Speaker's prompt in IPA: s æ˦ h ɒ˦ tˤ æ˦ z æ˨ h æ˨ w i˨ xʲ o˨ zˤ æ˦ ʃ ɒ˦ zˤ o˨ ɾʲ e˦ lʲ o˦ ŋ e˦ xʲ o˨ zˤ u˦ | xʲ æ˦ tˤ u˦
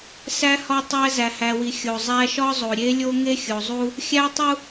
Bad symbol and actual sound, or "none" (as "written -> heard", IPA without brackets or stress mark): none